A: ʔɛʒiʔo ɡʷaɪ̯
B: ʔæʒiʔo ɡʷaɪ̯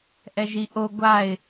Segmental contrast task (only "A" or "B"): A